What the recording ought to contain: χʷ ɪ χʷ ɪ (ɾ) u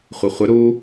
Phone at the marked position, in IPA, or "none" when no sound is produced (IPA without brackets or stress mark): ɾ